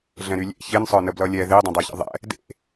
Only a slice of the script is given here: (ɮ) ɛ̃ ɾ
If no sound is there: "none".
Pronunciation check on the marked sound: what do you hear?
ɮ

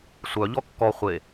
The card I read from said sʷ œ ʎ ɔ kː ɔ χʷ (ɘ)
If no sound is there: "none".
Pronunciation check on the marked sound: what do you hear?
e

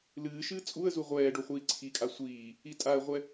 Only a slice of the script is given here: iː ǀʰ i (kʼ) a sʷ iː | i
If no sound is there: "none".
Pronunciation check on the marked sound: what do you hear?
kʼ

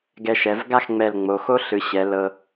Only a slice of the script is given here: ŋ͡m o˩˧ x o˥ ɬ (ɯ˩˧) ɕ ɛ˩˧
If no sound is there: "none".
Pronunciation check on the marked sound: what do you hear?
ɯ˩˧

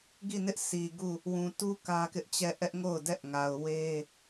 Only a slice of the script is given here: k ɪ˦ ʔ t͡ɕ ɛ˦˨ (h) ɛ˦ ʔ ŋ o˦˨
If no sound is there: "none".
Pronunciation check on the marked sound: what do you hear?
ʔ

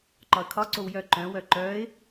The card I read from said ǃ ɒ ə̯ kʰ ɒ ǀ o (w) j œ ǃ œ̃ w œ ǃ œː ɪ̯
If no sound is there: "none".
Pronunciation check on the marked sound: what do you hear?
w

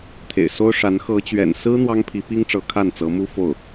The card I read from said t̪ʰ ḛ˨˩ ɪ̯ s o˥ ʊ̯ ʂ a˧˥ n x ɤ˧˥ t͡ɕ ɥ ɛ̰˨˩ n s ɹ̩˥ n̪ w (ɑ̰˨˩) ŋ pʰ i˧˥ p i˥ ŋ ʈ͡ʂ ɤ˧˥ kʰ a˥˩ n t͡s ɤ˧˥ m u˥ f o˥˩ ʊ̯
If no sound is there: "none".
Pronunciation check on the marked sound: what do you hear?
ɑ˥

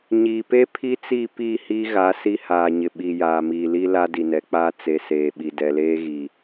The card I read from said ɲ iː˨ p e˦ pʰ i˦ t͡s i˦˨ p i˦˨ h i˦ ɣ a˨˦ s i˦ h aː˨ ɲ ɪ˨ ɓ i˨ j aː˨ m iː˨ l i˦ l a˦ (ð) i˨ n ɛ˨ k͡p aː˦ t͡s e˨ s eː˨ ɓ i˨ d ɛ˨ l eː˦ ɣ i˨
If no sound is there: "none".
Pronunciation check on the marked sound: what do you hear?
d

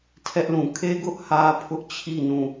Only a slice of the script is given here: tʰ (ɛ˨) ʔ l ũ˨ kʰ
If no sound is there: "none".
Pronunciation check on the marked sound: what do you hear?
ɛ˦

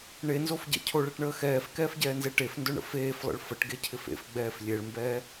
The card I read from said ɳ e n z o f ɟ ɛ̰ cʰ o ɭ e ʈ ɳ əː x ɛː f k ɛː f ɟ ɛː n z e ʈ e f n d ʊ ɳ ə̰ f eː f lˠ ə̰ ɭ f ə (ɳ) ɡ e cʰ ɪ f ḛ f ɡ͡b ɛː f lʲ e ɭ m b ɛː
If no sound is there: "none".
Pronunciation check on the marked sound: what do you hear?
ʈ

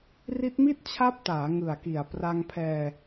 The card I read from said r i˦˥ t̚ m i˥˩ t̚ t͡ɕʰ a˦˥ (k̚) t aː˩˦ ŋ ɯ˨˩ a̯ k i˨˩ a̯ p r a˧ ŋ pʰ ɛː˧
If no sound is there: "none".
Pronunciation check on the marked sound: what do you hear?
p̚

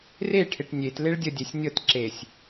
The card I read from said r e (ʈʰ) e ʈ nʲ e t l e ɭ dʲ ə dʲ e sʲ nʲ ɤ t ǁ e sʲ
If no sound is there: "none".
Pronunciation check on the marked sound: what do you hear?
ʈʰ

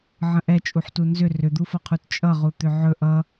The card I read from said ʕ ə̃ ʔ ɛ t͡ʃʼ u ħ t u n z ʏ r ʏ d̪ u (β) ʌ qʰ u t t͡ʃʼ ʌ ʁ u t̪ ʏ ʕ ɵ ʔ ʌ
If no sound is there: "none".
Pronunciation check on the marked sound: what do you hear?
f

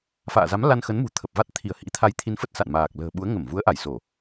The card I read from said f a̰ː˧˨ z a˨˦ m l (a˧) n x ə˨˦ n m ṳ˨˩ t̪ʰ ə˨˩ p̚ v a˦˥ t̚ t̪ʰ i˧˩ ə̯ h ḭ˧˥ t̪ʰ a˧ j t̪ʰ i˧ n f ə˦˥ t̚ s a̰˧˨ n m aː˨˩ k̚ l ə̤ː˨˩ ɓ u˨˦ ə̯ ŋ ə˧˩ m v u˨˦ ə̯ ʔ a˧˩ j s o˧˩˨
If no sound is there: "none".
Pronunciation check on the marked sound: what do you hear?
a˧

